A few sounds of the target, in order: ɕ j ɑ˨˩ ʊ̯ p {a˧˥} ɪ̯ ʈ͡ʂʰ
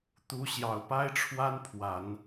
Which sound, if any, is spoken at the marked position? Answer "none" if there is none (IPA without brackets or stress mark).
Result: a˥